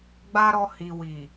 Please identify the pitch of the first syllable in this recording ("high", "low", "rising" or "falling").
high